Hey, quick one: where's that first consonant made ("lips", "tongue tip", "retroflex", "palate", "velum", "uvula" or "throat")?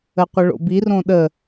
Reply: uvula